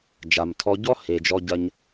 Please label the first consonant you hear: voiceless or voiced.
voiced